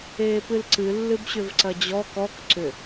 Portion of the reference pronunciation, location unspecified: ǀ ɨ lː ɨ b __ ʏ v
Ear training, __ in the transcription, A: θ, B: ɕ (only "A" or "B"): B